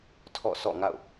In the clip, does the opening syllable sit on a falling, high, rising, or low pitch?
falling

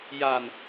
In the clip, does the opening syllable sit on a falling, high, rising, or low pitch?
low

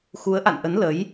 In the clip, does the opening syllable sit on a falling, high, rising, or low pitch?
rising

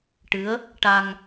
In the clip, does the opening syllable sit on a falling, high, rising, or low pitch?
rising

